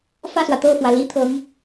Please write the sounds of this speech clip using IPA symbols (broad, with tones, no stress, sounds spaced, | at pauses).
f ä˥˩ s w ä˩ t̪ ɤ˥˩ f w ä˩ l i˥ t̪ʰ ɤ˧˥ ŋ